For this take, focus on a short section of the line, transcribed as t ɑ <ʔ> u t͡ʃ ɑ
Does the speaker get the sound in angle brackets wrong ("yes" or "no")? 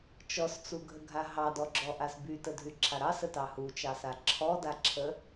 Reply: yes